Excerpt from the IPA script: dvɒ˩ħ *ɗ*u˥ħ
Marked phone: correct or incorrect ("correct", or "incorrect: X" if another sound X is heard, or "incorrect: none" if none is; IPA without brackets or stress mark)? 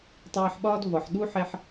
correct